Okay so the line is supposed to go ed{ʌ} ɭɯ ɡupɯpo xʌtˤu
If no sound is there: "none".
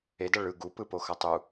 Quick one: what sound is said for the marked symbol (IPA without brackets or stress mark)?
ʌ